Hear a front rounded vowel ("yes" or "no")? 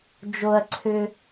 yes